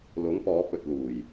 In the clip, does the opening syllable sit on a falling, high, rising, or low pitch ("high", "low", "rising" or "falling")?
rising